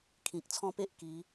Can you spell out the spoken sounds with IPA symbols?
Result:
kʰĩ˨k̚t͡sʰɔ̃˦pe˦ʔ ki˨˦

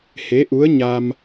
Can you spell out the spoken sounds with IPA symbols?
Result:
he˧˥ʔu˧˥ə̯ɲa˧m

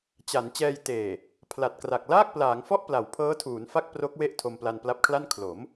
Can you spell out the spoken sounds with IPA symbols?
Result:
t͡ɕa˩˦n t͡ɕɛː˧j teː˨˩ | pʰla˨˩t̚kra˨˩k̚ laː˥˩k̚plaː˩˦ŋfɔ˥˩ʔ pla˩˦wpʰɤː˦˥tʰuː˩˦nfa˥˩k̚ pro˦˥k̚we˥˩ʔ tʰo˧mpla˧npla˦˥p̚kʰla˥˩n kʰlo˩˦m

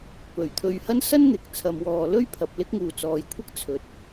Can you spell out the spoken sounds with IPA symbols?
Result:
pɵ˨˩ɥt̪ʰɵ˧ɥhɐ˥n sɐ˥nn̪ɪ˨k̚ t͡sʰɐ˧mwɔː˧ lɵ˥ɥpʰɐ˧p̚ lɪ˥k̚ŋuː˨t͡sɔː˨jkʷʰɐ˥k̚ t͡sʰɵ˧t̚

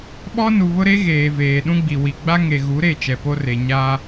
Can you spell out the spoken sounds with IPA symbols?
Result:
ɓɔ˦ nu˨βʊ˦ɾe˦ ɣeː˨ veː˨ɗũ˦ɡ͡bi˨ wi˨ ɡ͡ba˦ŋe˨ ɣu˨˦ɾe˦˨ t͡ʃɛ˨po˦re˨ ɲa˦

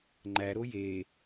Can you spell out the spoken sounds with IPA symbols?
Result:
ŋ͡ǃæɾo je

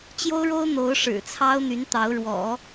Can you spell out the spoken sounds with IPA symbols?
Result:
t͡ɕjo˥ʊ̯ɻo˥ʊ̯ n̪o˧˥ʊ̯ʂɻ̩˨˩ t͡sʰɑ˥ʊ̯n̪y˧˥n t̪ɑ˧˥ʊ̯ɻwɔ̰˨˩˦

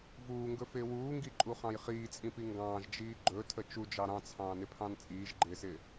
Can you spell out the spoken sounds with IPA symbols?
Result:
vuːŋɡɵfɪː wuːŋɡiǃʼuχɑ̃j χiːt͡sʼĩpi ŋɡɑ̃ːʒd͡ʒiː ɡ͡ǃɵtʰə t͡ʃud͡ʒɑ ɾɑ̃t͡sʰɑ̃ːnɪpʰɑ̃n t͡sʼiːʒɡ͡ǃɪːsɪː

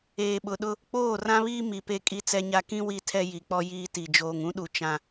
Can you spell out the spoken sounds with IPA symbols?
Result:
eː˨ɓʊ˨ɗʊ˦ | k͡poː˦˨rã˦βiː˦ mi˨pe˦kʼi˦ t͡sɛ˦ɲa˦ kĩ˦ wi˦tʰɛ˦ ji˨k͡pɔ˦ jiː˦ti˨ d͡ʒoː˨ŋũ˦ɗu˨ t͡ʃã˦

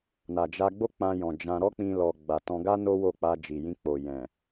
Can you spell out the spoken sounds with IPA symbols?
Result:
na˨d͡ʒa˧ɡ͡bo˦k͡pã˧ jɔ̃˨d͡ʒã˧ ɾɔ˦ k͡pĩ˧lɔ˨ ɡ͡ba˨tɔ̃˧ɡa˦ no˦wo˦˨k͡pa˧ d͡ʒi˨jĩ˧k͡po˨jɛ̃˨

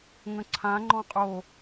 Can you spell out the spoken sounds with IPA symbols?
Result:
ŋə̃ǀʰã ŋ͡ǃɔ̃qʼo

